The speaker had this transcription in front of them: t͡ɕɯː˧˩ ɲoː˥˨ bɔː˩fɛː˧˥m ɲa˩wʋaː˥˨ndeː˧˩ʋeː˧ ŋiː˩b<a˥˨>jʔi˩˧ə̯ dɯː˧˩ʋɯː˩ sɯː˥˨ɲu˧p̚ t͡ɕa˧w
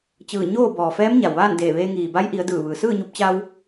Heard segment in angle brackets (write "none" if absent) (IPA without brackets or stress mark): a˧˥